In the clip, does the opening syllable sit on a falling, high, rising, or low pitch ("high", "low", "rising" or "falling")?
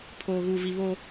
low